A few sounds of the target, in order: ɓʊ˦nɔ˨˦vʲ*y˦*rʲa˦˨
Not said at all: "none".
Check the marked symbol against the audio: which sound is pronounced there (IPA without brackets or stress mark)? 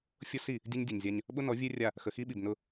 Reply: e˦